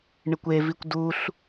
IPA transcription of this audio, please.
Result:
ɳ ɪ kʷ e v i kʷ d u ɬ

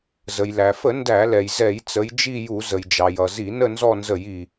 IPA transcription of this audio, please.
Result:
z ə˩ j l æ˩ f ə˧˩˧ n d æ˧˩˧ l ɛ˩ j z ɛ˧˩˧ j t͡s ə˩˧ j d͡ʒ i˦˨ j u˧˩˧ z ə˩ j d͡ʒ ɑ˩ j ʌ˩ z i˧˩˧ n ə˦˨ n z ɔ˦˨ n z ə˧˩˧ j i˩

